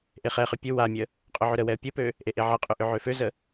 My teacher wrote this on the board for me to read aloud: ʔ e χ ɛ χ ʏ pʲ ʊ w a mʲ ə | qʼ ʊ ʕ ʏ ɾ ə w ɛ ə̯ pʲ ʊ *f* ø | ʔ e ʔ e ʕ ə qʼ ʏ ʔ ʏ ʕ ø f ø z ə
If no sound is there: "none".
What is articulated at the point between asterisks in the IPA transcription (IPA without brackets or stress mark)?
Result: p